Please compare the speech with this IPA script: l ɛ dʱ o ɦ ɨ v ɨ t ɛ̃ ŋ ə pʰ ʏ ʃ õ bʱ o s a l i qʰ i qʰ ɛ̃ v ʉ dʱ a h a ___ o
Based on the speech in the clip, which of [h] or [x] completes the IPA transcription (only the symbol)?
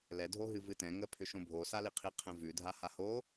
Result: h